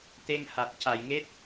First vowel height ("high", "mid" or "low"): mid